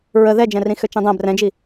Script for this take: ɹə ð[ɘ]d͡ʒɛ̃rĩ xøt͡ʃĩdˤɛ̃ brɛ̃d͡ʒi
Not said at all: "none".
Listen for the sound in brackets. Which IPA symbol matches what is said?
ɛ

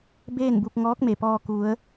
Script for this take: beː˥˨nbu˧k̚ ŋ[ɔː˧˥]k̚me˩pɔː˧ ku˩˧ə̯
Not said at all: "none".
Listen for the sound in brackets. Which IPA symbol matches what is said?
ɔː˧˥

